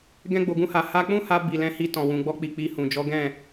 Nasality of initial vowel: nasal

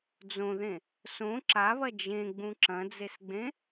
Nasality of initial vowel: nasal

